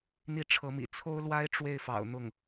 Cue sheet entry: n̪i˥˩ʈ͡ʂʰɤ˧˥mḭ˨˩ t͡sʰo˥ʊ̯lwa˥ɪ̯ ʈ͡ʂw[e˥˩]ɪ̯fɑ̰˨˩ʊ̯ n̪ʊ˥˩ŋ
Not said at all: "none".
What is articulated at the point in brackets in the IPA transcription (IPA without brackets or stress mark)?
e˥˩